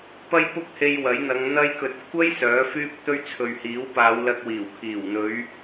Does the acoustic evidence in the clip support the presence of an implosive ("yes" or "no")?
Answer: no